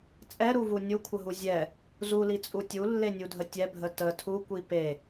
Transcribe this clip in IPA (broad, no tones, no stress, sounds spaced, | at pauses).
t͡sʼ ɛ ɾ u v u nʲ u kʷʰ ə ɦ u zʲ ɛ | z u l i t͡sʼ u tʲ u lː e nʲ u dʱ ə tʲ ɛ bʱ ə t ə tʰ u kʷ i p e